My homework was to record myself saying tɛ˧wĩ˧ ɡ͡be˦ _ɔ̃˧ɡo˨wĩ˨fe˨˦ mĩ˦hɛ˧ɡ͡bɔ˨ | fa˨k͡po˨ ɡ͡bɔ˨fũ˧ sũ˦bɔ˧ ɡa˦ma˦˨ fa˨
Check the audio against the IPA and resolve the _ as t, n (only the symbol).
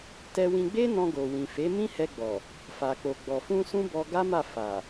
n